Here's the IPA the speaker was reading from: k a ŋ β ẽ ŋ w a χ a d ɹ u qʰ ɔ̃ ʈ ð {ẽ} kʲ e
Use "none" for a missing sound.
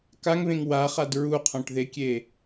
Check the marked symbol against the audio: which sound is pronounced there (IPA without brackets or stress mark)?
e